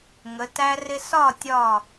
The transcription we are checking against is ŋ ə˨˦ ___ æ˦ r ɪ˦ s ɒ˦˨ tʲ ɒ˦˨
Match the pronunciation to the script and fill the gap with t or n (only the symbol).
t